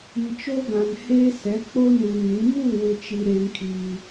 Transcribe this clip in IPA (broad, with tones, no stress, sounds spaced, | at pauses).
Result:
i˨ t͡ʃ oː˦ ɡ ã˨ n h eː˦ s ɛ˨˦ k͡p oː˦ n u˨ ŋ ĩ˨˦ m uː˦˨ w ɪ˨ t͡ʃ i˨ ɾ eː˦ ŋ kʰ iː˦